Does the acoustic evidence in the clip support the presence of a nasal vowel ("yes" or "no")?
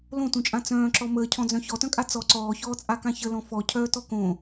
yes